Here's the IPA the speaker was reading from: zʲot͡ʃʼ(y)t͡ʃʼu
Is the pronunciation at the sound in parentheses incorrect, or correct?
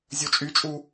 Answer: correct